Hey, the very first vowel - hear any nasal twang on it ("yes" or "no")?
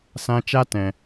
yes